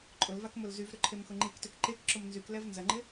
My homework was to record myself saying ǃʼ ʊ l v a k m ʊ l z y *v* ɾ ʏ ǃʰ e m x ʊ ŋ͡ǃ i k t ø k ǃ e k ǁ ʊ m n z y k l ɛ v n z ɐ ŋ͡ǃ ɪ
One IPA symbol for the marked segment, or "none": v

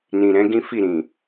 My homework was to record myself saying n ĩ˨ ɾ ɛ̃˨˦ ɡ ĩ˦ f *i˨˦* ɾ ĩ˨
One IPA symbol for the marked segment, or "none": i˦˨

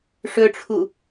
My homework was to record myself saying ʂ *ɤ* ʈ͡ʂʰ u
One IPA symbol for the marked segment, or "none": ɵ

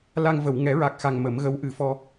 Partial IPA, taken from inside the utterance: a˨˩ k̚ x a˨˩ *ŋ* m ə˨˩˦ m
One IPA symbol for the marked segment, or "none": ŋ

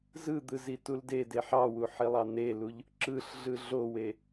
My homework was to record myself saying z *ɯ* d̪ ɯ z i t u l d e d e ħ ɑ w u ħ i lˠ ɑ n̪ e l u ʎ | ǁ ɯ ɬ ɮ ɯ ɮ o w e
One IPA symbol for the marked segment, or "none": ɯ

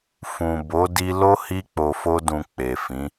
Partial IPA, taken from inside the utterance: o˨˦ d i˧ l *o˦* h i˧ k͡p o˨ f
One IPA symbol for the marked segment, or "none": o˦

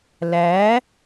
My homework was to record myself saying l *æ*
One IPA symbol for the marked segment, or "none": æ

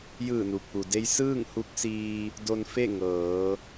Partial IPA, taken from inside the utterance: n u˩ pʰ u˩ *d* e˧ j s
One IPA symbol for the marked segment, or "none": d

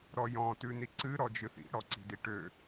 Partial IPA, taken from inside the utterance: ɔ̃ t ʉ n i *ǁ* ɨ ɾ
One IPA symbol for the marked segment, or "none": ǀ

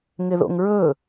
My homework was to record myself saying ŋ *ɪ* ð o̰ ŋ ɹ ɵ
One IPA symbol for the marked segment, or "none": ɪ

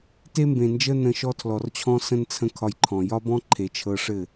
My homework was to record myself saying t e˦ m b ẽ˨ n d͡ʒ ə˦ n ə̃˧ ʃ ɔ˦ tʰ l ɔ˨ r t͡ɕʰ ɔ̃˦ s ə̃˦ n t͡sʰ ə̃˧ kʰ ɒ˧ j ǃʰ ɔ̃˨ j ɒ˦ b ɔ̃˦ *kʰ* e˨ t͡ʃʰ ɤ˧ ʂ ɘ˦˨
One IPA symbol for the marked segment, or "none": ǃʰ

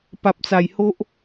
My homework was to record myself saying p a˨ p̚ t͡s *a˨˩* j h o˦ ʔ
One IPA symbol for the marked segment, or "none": a˨˩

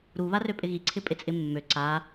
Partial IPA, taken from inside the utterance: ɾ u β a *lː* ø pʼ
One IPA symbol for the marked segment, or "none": r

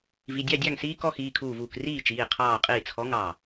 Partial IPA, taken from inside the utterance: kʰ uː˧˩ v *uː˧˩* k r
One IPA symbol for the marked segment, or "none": uː˧˩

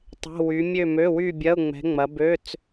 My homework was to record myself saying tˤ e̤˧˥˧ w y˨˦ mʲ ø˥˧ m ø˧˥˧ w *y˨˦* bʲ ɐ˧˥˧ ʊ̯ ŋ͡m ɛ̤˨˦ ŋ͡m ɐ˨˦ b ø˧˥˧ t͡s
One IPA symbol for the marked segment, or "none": y˥˧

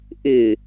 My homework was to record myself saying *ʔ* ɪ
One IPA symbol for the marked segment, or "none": ʔ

